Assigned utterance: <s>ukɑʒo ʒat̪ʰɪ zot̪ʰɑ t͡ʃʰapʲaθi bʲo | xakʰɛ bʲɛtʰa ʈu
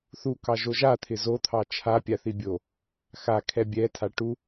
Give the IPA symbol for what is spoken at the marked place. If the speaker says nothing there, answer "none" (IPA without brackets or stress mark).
θ